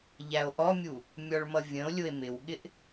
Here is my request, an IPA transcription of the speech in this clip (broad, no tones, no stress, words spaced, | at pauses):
ʎæo̯ʔɔmʲu | mʲɔɭmʌvʲə̃o̯lʲʊe̯ mɪwɠɪʔ